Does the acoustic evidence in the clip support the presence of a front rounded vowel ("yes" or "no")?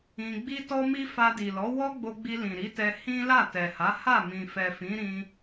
no